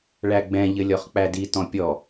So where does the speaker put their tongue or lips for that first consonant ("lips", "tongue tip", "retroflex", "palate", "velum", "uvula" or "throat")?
retroflex